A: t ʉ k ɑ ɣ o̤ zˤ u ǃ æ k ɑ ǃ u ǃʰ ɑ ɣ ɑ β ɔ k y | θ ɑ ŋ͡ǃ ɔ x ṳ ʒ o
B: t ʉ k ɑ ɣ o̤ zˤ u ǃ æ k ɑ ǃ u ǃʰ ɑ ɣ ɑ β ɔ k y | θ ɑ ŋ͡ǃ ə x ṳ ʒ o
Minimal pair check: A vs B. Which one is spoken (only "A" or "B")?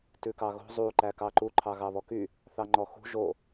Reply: A